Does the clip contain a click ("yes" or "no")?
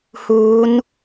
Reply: no